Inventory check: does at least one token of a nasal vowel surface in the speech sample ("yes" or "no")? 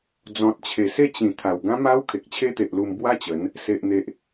yes